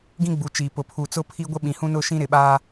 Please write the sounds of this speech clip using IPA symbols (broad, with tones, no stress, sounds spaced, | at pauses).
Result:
ɡ ĩ˦ ɡ͡b u˨ t͡ʃ iː˨ p ʊ˨ pʰ u˨ t͡s ʊ˦ pʰ i˦ ɡʷ ɪ˦ ɓ ĩ˨ h ũ˦ n ʊ˦ ʃ ĩ˦ ɾ ɪ˨ ɓ aː˦